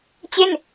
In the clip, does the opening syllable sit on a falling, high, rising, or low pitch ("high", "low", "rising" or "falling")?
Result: falling